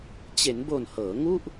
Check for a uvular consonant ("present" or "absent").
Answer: absent